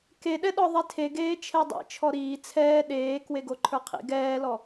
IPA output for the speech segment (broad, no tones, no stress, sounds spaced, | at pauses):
k e ɗ ɛ ɗ ɔ ðˤ i tʰ e ɡ eː t͡ʃʰ ɛ dˤ ḭ t͡ʃʰ ɔ ɾ iː t͡sʰ ɛː ɗ eː k w e ɡ o ǃʰ ə˞ qʰ ḭ ɡ ɛː l ɔ